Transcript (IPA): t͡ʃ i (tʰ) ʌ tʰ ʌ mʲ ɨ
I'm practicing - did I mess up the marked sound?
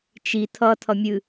no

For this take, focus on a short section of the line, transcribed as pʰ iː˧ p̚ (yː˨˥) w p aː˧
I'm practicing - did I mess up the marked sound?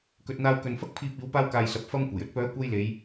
yes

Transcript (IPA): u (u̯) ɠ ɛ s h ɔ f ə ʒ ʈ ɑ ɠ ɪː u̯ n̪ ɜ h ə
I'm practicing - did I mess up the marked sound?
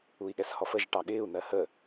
yes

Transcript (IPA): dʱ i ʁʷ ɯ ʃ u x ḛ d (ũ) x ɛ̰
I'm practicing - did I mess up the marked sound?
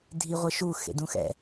no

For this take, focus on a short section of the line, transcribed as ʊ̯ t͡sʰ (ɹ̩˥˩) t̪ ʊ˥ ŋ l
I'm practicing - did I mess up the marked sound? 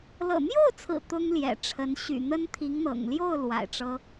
yes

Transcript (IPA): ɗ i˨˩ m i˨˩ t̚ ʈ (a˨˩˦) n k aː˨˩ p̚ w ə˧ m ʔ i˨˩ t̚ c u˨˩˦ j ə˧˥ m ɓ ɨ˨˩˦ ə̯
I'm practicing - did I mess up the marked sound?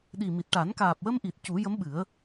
no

